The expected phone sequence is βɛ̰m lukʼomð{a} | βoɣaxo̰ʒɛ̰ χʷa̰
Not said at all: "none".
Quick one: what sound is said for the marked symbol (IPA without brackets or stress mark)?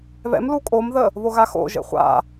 ə